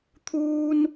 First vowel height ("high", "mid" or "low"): high